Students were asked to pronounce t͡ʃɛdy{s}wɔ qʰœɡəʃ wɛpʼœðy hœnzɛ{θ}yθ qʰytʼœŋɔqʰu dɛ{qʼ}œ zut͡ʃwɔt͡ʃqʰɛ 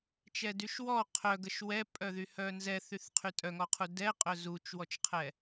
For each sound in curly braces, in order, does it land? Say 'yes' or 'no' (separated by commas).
no, yes, yes